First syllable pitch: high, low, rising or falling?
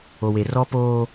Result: low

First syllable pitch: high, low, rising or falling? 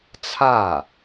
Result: falling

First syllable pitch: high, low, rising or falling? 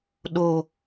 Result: low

